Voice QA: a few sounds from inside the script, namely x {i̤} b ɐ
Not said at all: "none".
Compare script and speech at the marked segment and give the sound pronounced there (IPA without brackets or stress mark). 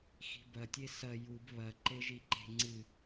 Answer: i̤